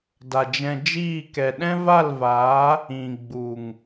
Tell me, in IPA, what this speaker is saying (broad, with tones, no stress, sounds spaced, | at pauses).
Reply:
d a˨ d͡ʒ ɛ̃˧ d͡ʒ iː˦˨ k ɛ˨ ɗ ɛ̃˦ v a˦˨ l v aː˨˦ | ĩ˨ ɡ͡b u˨ ŋ